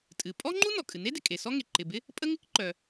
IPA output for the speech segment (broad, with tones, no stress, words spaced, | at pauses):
tʼɨ˩ pʼɔ˥ŋ͡ǃu˥ nɔ˩kʼɨ˩ne˥ dɪ˩ kʼe˩ sɔ˥ŋe˩ ǃɪ˩bɪ˥ | pʼə˥ ŋɪ˥kǃœ˩